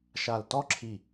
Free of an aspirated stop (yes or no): no